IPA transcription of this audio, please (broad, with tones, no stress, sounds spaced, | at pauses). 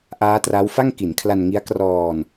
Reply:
ʔ aː˦˥ t r a˦˥ w f a˥˩ ŋ k i˩˦ n kʰ l a˧ n ŋ i˦˥ a̯ k r ɔː˧ n